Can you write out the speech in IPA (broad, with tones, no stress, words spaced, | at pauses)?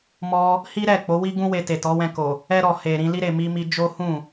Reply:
mɔ˧ | hi˦ɾɛ˦˨k͡po˨˦wi˦ ɡũ˦we˧ te˨tɔ˨˦wɛ̃˧ko˨ | ɛ˧ɾɔ˨ he˨ ɾĩ˧li˦ ɾe˧ mi˧mi˧ d͡ʒo˦hũ˦˨